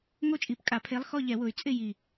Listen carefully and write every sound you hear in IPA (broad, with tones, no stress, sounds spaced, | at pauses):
ŋ o˦˥ t͡ʃʼ i˧˩˧ p kʼ a˧˩˧ pʰ e˨˥ lˠ x ɔ˦˨ ʎ ɛ˧˩˧ w ʊ˨˩ y̯ t͡sʼ ɪ˦˨ j i˨˩